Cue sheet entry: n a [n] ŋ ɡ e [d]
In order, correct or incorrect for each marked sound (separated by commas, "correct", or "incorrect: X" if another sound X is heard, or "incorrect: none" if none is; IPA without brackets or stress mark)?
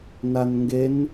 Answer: correct, incorrect: n